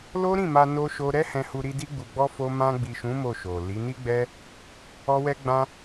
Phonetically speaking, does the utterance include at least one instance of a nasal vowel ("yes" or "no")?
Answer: yes